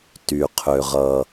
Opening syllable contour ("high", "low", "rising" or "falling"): low